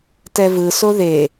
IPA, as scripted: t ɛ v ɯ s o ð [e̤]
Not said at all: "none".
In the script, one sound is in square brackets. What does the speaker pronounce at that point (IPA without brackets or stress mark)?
e